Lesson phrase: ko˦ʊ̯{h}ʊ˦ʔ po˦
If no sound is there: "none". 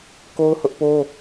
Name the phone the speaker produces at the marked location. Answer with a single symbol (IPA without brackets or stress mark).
h